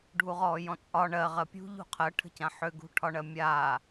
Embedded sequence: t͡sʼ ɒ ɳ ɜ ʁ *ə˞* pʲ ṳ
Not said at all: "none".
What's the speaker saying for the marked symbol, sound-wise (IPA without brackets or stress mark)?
ɜ